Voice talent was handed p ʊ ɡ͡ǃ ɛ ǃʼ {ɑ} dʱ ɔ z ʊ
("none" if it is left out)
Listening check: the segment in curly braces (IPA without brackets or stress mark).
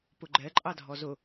ɑ